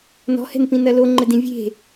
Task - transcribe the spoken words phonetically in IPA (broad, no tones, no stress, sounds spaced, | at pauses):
n ɔ̤ h ɛ̤ n p ĩ n ɐ l o ŋ͡ǃ ɘ d ĩ vʲ e̤